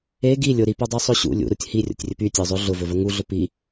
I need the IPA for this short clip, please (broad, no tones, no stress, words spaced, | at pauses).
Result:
e ɡi lʲʊ ɾipodˤysˤo ɕṵ lʲṵɾutʲ hirʲo̰tʲrʲɵp ytʲəʊ̯zˤo ɮʊvɵvə ŋuɮʊ pi